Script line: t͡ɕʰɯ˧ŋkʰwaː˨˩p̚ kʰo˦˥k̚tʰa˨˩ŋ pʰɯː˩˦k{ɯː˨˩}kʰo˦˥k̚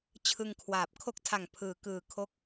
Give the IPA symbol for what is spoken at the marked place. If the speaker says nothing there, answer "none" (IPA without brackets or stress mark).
ɯː˨˩